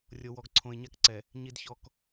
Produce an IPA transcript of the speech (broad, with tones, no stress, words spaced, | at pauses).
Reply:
rʲo˨ wɔ˨ɡǀʰõ˨ɪ̯ɲa˦kǀɛ˨ | ɲi˨dçɔ˨k